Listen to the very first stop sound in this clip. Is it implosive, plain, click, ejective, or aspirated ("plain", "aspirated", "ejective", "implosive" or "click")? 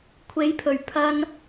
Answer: aspirated